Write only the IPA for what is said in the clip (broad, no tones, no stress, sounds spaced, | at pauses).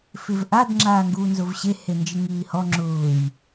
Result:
f ɪ v ʔ a d ŋ͡ǁ aː ŋ ɡ uː n z ʊ v ɕ e h e n d͡ʒ ɪ ŋ iː h ɔ ŋ͡ǁ ʊː j